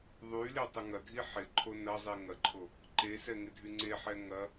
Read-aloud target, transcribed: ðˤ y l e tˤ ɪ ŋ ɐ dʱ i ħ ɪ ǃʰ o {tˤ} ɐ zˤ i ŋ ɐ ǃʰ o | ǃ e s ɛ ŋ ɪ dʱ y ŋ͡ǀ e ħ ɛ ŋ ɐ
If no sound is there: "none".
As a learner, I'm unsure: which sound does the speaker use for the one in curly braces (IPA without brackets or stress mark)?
n